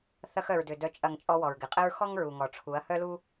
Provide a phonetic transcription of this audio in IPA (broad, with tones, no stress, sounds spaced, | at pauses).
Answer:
θ ɐ˧ x œ˨ ɹ d ʏ˨ d œ˨ t͡ʃʼ ɐ˨ ŋ t͡ʃʼ ɔ˧ w ɔ˨ ɹ ɡ ɪ˨ qʼ ɪ˦ ɹ x ɔ˦ ŋ ɹ u˨ ŋ ɔ˨ ʈ͡ʂʰ u˨˦ ɐ̯ h œ˦ l u˦